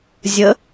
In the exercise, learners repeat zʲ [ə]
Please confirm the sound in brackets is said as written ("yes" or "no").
yes